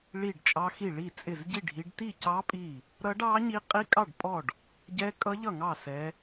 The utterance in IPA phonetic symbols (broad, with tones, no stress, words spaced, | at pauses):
ɭi˥˨ɖt͡ʃʼɑ˦˥xi˥˨ ɭi˥˨t͡sʼɪ˥˨z ɟi˥˨ ɖʱi˦˥ɖ ti˥˨cɑ˦˥ pʼi˥˨ | ɾʌ˦˥ɖɑ˦˥ɲi˦˥ qʼi˦˥kʼɑ˥˨ɖpʼɔ˥˨ɖ | ɟɛ˦˥kʼʌ˦˥ ʎʌ˥˨ŋɑ˥˨ sɛ˦˥